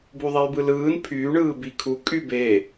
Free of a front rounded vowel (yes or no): no